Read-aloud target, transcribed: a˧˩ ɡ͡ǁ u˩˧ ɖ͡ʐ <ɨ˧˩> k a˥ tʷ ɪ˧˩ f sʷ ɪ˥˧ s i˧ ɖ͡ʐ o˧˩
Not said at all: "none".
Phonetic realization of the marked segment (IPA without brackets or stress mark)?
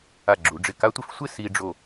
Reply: ɪ˧˩